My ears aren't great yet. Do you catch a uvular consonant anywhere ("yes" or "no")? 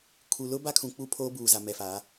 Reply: no